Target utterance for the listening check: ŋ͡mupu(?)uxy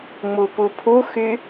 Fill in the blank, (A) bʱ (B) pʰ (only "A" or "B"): B